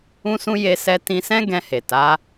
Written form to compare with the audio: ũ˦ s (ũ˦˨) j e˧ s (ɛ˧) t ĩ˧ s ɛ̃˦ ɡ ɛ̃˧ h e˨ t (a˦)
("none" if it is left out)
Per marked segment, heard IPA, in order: ũ˦, ɛ˧, a˨˦

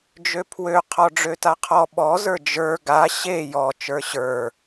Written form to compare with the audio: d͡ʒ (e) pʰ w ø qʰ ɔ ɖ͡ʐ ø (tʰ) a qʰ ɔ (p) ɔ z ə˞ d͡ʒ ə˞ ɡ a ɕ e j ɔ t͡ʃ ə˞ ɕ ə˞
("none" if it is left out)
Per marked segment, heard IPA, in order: ø, t, ɓ

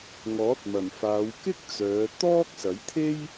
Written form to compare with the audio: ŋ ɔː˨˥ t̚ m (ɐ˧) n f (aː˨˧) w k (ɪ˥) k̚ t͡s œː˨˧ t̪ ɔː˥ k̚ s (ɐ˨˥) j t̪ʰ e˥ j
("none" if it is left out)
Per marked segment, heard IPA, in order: ɐ˨˩, aː˨˧, ɪ˥, ɐ˨˥

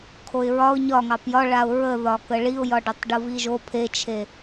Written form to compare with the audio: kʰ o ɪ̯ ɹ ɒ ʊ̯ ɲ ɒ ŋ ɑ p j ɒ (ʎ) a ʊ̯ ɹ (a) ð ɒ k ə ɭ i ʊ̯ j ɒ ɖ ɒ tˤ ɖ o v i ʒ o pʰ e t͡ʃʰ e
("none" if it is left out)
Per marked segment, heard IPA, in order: ɭ, ə

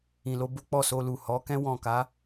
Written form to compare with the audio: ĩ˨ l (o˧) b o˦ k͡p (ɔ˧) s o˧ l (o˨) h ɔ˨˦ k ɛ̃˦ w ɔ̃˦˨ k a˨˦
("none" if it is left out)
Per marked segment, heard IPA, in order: o˧, ɔ˦˨, u˨

